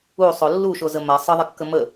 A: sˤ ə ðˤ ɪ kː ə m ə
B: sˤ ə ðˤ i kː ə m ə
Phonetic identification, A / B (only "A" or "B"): A